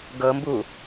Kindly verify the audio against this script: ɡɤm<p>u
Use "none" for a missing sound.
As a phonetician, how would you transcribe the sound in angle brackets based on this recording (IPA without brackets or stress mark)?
b